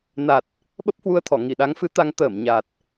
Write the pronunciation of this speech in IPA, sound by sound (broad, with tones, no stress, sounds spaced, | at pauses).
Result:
n a˨˩ t̚ | ɓ ə˦˥ p̚ h w u˧ ə̯ t̪ʰ ɔ˧˩ ŋ i˧˩ ɗ a˨˦ ŋ f ɨ˨˦ t̪ a˧ ŋ t̪ əː˧˩ m ɲ a˨˩ t̚